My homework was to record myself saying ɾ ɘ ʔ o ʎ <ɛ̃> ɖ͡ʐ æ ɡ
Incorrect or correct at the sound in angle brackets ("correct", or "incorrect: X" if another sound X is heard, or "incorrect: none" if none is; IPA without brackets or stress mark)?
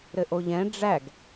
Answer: correct